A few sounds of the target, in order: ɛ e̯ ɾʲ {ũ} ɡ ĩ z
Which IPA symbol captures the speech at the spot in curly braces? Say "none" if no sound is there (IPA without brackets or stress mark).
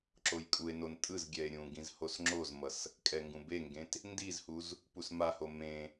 ũ